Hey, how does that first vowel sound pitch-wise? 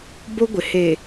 high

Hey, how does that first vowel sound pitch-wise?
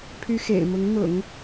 high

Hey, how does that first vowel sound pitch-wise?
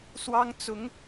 high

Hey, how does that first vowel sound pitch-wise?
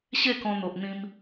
falling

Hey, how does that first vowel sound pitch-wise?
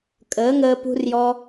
rising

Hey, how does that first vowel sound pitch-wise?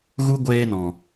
high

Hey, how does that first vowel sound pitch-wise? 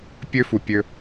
high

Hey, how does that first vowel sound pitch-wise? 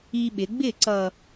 high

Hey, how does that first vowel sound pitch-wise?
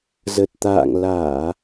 low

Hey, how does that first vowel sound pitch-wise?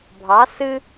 rising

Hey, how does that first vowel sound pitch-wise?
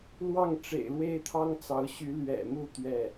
falling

